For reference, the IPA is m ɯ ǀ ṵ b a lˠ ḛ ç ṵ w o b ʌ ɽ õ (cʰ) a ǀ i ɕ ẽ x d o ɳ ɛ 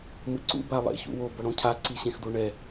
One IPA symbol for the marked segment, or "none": cʰ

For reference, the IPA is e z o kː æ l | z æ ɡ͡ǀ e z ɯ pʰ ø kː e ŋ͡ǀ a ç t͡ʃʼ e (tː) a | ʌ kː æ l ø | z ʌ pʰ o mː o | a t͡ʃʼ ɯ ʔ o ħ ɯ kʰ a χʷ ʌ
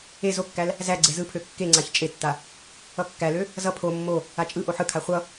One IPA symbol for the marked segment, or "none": tː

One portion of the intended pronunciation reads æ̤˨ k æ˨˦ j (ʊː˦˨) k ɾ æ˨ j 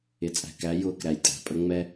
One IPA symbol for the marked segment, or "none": ʊː˦˨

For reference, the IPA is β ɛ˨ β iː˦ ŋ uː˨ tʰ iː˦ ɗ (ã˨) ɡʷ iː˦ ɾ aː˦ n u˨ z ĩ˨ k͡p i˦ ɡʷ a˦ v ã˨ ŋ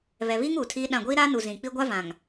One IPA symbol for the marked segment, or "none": ã˦˨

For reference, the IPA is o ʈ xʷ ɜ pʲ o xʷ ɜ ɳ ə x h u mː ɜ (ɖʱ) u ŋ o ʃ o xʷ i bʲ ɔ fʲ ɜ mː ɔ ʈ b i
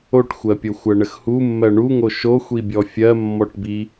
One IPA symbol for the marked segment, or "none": ɳ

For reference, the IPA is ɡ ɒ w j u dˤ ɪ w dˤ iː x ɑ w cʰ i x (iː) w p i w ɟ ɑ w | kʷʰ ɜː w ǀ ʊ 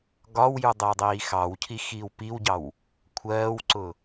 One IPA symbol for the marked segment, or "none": iː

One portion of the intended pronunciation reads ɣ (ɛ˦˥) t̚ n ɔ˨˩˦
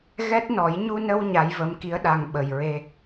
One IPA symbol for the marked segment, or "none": ɛ˦˥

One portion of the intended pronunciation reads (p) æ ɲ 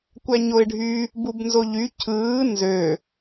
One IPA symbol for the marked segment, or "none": kʷ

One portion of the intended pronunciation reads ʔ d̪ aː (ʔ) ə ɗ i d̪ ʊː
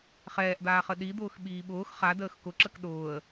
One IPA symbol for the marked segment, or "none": χ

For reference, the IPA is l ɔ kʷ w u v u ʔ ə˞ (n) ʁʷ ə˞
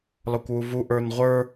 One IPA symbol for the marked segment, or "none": n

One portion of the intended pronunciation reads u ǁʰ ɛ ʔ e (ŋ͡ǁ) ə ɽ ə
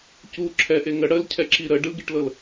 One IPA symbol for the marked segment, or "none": ŋ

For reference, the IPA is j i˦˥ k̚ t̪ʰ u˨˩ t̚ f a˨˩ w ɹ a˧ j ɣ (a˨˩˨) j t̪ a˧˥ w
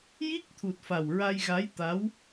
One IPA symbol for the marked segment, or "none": a˧˥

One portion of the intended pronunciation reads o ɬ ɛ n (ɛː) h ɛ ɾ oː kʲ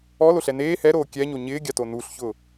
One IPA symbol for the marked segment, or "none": eː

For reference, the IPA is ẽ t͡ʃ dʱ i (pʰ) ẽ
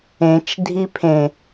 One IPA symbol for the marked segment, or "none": pʰ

